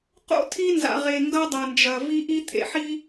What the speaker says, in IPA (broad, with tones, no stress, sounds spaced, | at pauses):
q o̰˦ tʰ i˦ n z a̰˨ ʁ e˨ ŋ ɡ ɐ˦ dˤ ɐ˨ n d͡ʒ ɐ˨ v i˦ ʔ i˦ t̪ʰ ḛ˨ ħ i˦